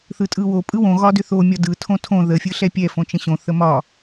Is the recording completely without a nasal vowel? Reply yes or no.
no